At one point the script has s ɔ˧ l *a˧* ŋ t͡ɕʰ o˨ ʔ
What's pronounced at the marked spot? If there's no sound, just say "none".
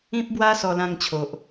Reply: ã˧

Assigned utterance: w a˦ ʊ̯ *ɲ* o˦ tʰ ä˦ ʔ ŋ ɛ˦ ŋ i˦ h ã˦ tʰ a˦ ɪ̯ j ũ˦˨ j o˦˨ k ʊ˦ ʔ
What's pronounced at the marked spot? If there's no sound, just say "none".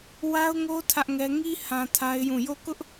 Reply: ŋ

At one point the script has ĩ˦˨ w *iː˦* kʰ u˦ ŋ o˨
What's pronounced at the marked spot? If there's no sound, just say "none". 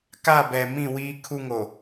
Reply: iː˦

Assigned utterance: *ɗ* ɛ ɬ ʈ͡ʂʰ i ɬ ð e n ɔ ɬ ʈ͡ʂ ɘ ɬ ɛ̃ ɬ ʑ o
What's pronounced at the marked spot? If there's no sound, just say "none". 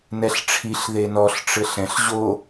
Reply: n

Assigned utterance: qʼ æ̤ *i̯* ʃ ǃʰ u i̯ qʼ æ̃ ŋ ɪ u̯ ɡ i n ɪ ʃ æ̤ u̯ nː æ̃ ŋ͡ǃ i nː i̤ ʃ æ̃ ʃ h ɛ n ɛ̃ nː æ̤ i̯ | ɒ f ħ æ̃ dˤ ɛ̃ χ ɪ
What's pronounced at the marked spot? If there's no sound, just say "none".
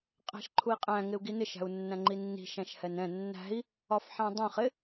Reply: none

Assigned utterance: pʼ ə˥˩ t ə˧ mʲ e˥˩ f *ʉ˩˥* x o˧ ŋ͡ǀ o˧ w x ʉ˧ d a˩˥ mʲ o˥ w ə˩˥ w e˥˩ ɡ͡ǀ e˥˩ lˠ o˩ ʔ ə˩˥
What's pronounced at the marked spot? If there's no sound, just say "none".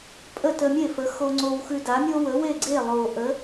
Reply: ə˩˥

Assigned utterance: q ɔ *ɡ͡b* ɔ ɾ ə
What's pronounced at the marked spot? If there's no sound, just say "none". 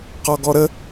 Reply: ɡ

